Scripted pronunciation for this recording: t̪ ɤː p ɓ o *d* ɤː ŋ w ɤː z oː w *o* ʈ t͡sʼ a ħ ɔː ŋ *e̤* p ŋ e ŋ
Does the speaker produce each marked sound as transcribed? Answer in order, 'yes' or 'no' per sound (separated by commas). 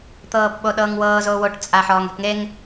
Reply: no, yes, yes